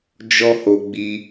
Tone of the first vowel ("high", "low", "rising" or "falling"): high